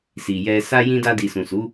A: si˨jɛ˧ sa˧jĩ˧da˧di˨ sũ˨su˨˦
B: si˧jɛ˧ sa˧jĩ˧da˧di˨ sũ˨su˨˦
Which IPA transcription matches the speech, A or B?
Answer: A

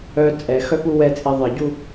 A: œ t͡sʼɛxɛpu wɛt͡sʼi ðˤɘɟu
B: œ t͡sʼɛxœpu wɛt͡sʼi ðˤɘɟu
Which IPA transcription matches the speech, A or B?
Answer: B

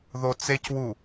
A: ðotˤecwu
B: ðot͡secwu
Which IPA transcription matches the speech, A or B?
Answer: B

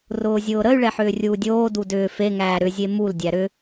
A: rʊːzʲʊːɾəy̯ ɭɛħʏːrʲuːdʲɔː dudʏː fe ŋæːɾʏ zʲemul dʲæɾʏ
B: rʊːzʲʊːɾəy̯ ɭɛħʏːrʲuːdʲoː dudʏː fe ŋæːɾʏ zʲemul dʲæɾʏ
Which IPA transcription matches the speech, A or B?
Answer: B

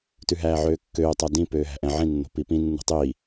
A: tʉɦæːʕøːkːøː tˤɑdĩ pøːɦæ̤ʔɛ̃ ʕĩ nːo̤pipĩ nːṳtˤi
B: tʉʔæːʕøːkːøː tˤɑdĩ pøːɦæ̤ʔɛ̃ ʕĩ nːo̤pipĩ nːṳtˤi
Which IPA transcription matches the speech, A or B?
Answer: A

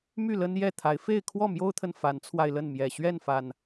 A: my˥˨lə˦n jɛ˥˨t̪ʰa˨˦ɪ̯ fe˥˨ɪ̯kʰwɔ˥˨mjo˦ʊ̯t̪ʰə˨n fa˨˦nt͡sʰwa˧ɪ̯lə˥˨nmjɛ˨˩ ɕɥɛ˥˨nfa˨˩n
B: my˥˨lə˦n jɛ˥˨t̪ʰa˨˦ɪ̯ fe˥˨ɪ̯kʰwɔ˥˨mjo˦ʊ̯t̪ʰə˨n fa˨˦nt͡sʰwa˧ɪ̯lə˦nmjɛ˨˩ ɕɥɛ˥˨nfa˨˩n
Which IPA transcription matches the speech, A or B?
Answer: A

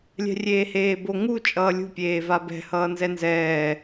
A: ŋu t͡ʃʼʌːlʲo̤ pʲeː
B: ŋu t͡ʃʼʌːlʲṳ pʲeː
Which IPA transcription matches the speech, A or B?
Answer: B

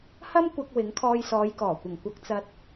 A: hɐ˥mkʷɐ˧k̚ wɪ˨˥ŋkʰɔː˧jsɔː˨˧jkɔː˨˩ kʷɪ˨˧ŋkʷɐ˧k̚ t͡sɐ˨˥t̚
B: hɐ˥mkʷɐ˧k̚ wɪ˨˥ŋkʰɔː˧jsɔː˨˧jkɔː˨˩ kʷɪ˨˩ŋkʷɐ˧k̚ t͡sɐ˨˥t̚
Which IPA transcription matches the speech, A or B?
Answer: B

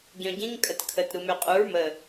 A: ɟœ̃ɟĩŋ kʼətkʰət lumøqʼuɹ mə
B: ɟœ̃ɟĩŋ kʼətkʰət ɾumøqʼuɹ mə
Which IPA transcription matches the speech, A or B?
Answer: B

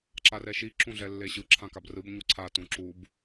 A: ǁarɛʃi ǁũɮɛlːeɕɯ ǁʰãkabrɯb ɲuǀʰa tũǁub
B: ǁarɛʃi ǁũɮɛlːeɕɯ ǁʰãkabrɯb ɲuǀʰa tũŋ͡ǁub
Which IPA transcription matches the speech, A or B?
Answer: A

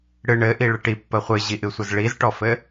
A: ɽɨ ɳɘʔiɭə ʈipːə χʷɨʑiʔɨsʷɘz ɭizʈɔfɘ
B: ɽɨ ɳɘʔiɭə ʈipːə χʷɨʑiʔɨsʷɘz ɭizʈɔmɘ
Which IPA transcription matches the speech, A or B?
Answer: A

